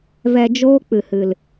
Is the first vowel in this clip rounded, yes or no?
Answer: no